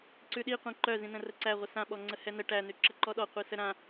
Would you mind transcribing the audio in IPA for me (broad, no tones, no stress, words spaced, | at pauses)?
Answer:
ǀʉɗi qʷĩǃœzĩ nə̃rəǀæʁʷə sãɓɔŋ͡ǀə hɛnə ʈænʉ ǁəǃɔɗɔ qʷisəɾã